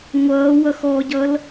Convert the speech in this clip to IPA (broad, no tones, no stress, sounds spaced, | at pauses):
ŋʷ ʌː w ʌ x ɔ ɟ ʌ l